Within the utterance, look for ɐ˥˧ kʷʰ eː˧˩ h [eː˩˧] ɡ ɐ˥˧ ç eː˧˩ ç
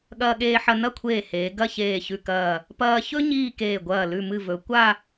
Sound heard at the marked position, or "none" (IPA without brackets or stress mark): eː˩˧